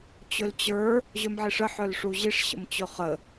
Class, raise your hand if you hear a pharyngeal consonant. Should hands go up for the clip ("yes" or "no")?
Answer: yes